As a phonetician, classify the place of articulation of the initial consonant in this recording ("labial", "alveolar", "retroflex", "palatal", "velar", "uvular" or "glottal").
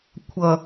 velar